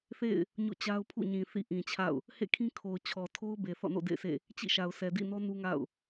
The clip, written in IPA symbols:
θ ḛ˦˨ ɪ̯ | ɲ o̰˦˨ t͡ɕ a˦ ʊ̯ pʰ ṵ˦˨ ɲ ĩ˨ θ ḭ˦˨ ʔ ĩ˨ t͡ɕʰ a̰˦˨ ʊ̯ | h ḛ˦˨ kʰ ĩ˦ kʰ o˨ ʊ̯ t͡ɕʰ ɔ˨ tʰ o˦ ʊ̯ b e˨ θ ɔ̰˦˨ n o̰˦˨ d ḛ˦˨ ɪ̯ sʰ ḛ˦˨ | t͡ɕ ḭ˦˨ ʃ a˨ ʊ̯ sʰ ɛ˨ d ḭ˦˨ n ɔ˦ n u˦ ŋ a̰˦˨ ʊ̯

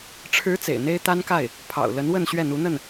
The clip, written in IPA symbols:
ʈ͡ʂʰ ɻ̩˧˥ t͡s ḛ˨˩ ɪ̯ n̪ e˥ ɪ̯ t̪ a˥ n k a˥˩ ɪ̯ | pʰ ɑ̰˨˩ ʊ̯ l ə˧˥ n w ə˥˧ n ɕ ɥ ɛ˥˩ n̪ u˧˥ n̪ ə˥˩ n

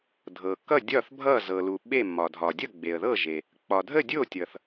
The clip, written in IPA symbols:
dʱ ɤ˩ k ʌ˥˩ dʲ ɒ˥˩ θ bʱ ʌ˥˩ z ɤ˩ l u˩ ɓ e˥˩ m ɒ˩ dʱ ɒ˩ dʲ ʌ˥˩ ɡ͡b e˩ ə̯ ð ɤ˥˩ ʒ e˩ | k͡p ɒ˩ dʱ ə˥˩ dʲ o˥˩ tʲ ʌ˩ θ

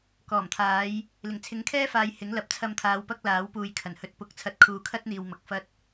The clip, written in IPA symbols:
k ɔː˨˩ m t̪ʰ aː˨˥ j | l ɪ˨˩ ŋ t͡sʰ ɪ˨˥ ŋ kʰ ɛː˥ f aː˨ j h ɪ˨˥ ŋ l ɐ˨˥ p̚ t͡sʰ ɐ˧ m t̪ʰ aː˨˧ w p ɐ˥ k̚ l aː˨˥ w p uː˨ j kʰ ɐ˨˩ n h ɵ˧ t̚ p ʊ˨˥ k̚ t͡sʰ ɐ˧ t̚ kʰ uː˨ kʰ ɐ˥ t̚ n̪ iː˨ w m ɐ˨ k̚ f ɐ˧ t̚

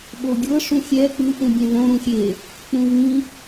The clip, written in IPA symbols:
ɓ o ɡʲ ɤ ʂ ũ xʲ ɛ k͡p ɯ ʔ ũ bʲ ɛ̃ v õ ɾ ũ xʲ e | k͡p ũ v ĩ

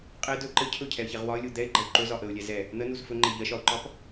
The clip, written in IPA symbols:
qʼ ɛ d ɵ ǃ ə cʰ ɵ cʰ ɛ ə̯ ç ɛ ʁ w ɒ ə̯ lʲ u d̪ ɛ ɪ̯ ɡ͡ǃ ɐ w ǃ ɵ z ɒ ʔ ə ʊ̯ lʲ ɛ z ɛ | n̪ ə n u z f ɵ ŋ͡ǃ ɛ ʎ ɐ ʃ ɒ ʊ̯ ǃ ɒ p

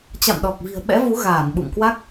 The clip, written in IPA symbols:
t͡ɕ a̰˧˨ m ɗ ɔ˨˩ k̚ v i̤˨˩ ə̯ ɓ ɛ̰˧˥ v u˨˦ ɣ aː˧˩ n ɓ ṵ˧˨ ŋ k w a˦˥ k̚

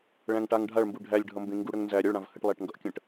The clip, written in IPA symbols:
ɭ æ̃ ŋ ʈ a ŋ ɖʱ a ɭ m b u ɖʱ æ lʲ ɖʱ ʌ m b ẽ ŋ ɡ u ɽ ə ŋ n z æ ɾʲ ə ɭ ɽ ã v h ə ʈ lˠ æ ʈ ŋ ɡ ʌ ʔ kʲ ə̃ ʈ

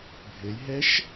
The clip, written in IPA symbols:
bʱ ɘ j ɦ ɛ ʃ

